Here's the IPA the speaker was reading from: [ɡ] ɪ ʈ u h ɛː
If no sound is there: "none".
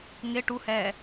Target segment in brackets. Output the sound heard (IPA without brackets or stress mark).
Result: ŋ